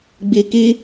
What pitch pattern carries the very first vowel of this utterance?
high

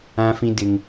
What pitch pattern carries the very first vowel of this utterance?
high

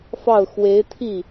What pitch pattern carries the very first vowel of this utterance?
falling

